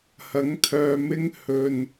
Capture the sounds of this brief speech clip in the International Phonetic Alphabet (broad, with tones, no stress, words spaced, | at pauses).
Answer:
hɐ˨˥ŋt̪ʰœː˧mɪ˥ŋ hɵ˧n